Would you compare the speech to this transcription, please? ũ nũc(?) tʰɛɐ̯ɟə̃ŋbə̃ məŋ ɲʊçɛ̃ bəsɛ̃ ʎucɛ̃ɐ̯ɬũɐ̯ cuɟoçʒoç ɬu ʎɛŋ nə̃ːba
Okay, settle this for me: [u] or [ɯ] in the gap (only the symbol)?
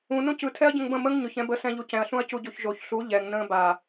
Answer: ɯ